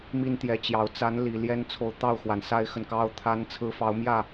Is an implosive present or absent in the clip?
absent